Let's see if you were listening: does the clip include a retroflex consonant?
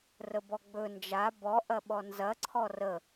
no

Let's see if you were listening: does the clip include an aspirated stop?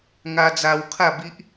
yes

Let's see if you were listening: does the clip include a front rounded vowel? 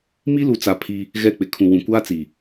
no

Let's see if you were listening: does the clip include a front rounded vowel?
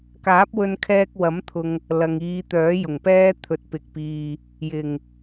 yes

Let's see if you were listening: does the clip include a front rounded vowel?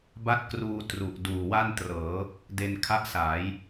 no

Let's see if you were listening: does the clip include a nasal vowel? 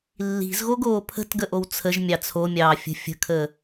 no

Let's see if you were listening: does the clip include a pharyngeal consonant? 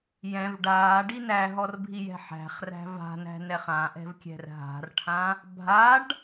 yes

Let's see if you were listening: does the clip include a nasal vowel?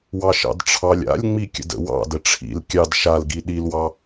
no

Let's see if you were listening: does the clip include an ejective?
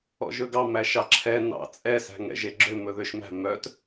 yes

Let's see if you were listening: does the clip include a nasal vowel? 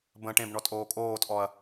yes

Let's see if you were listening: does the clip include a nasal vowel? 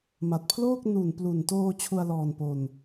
no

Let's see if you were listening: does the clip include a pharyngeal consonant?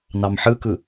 yes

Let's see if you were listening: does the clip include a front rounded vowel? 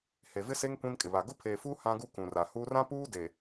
no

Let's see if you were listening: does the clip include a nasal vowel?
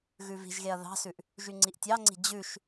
no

